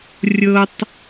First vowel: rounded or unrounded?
unrounded